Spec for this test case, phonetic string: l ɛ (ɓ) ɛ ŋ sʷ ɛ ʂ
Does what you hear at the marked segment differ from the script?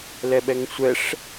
no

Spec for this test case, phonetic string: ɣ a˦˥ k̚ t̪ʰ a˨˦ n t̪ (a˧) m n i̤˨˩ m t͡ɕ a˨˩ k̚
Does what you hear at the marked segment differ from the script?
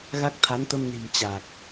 yes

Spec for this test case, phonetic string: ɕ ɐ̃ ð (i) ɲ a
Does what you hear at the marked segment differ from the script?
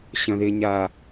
yes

